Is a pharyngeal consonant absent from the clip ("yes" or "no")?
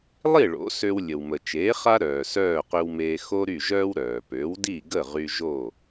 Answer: yes